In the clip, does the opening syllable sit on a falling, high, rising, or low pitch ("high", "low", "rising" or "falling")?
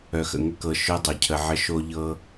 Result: low